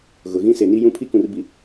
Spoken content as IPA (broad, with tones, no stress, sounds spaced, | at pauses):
ɣ ʊ˨ ɣ ĩ˦ s e˨ n i˦ j ũ˦ pʰ i˦ k ũ˨ r b i˨